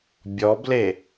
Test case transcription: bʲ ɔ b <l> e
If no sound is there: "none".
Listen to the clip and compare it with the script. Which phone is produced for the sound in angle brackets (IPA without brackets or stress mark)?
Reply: l